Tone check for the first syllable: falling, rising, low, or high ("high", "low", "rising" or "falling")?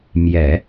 low